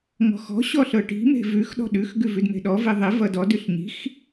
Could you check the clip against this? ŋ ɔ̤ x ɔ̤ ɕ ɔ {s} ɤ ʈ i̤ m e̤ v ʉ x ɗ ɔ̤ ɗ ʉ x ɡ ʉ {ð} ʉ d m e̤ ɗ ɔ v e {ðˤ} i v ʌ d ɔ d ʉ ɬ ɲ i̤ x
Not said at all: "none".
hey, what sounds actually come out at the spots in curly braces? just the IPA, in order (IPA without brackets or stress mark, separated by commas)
ɬ, v, ðˤ